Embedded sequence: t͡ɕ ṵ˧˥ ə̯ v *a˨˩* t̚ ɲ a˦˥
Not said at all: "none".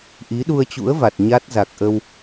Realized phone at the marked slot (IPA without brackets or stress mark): a˨˩